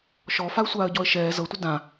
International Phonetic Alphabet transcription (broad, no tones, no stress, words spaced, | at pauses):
ʃɔ faə̯sʷaːə̯ɟɔə̯ʃɛː zɤtʷi dã